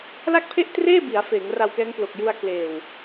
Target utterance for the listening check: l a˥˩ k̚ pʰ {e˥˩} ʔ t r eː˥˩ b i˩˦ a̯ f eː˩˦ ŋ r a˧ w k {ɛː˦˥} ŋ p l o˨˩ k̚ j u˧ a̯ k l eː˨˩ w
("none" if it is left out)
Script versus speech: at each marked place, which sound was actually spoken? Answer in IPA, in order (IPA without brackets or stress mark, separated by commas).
e˥˩, ɛː˦˥